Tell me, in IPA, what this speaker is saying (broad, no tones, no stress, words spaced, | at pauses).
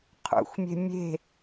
qʰṵxʷmʲe̤ mʲe̤